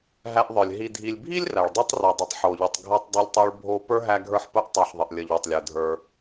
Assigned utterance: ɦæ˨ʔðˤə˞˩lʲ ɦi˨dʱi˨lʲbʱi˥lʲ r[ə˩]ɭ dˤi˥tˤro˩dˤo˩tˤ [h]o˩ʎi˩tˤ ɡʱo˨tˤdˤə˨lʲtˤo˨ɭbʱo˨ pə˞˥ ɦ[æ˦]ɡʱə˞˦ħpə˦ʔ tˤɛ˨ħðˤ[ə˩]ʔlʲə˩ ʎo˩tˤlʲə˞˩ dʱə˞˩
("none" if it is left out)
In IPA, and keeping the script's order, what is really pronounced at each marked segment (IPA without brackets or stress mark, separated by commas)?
æ˩, ħ, æ˦, ə˩